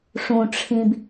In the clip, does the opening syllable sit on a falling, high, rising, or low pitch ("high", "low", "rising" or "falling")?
low